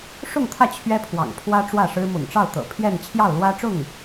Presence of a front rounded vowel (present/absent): absent